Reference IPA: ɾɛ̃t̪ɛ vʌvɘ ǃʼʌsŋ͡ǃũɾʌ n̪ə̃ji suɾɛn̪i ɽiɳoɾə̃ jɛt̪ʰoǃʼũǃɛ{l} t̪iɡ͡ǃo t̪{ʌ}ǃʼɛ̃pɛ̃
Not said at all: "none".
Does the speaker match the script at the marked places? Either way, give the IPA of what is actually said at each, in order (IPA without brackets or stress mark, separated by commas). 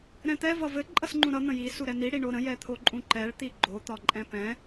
ɭ, ɒ